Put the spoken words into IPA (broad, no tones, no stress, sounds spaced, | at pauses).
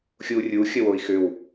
xʲ u rʲ u xʲ ə w o i̯ x ʏ w